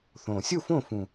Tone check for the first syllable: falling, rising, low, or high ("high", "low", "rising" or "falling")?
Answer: low